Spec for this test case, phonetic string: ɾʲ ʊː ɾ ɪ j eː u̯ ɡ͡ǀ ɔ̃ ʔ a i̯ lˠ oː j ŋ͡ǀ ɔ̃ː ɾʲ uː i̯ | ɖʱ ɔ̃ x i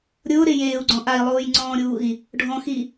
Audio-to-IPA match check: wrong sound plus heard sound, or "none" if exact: none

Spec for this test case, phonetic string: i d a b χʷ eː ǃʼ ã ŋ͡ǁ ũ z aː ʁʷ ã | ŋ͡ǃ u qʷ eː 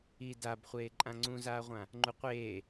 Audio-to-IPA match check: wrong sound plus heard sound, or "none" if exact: ŋ͡ǁ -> ŋ͡ǀ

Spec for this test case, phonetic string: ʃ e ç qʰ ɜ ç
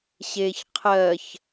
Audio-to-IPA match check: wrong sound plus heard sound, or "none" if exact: ʃ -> ɕ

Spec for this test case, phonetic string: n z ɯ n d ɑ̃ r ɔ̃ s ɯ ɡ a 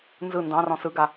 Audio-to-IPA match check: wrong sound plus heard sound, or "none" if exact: none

